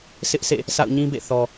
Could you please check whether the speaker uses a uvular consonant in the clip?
no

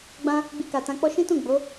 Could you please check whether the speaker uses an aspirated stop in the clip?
no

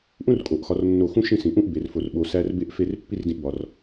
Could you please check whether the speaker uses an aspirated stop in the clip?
no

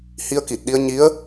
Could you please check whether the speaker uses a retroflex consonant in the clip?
no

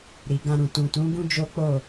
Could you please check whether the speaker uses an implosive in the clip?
no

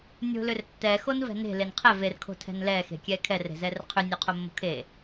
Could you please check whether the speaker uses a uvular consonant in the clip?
yes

